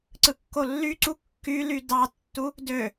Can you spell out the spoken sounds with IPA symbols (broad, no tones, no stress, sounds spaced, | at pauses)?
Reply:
ǀ ɯ kː o lː y ǀ u kː y l y d ɑ tː u | d ø